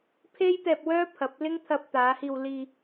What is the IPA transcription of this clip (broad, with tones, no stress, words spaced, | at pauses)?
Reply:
pʰe˥jt̪ɛː˧p̚ wœː˥pʰɐ˨˥p̚lɪ˥ŋ t̪ʰɐ˧p̚t̪aː˨˧hiː˧w liː˧